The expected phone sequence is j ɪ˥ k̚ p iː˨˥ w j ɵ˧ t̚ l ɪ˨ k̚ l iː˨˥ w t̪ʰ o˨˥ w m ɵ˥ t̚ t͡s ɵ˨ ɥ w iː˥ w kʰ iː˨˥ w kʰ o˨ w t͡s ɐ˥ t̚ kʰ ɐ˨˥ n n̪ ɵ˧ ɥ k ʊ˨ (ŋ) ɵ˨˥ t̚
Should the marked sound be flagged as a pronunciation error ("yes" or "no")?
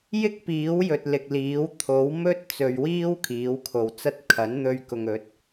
no